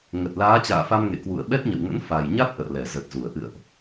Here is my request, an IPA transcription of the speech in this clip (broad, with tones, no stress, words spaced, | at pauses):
ŋə˨˩t̚laː˨˦t͡ɕa̰ː˧˨ fa˧mŋḛ˧˨ kwṵ˧˨ə̯ɓɛ˦˥t̚ɲə̰˧˨wŋə̰˧˥n fa˨˩jɲa˦˥t̚ ʔə̰ː˧˨lɛ˧˩zə˨˩t̚zu˧˩ə̯ ʔɨ̰˧˨ə̯ʔ